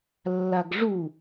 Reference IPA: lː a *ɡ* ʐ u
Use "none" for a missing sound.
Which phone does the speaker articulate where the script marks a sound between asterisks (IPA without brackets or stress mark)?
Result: ɡ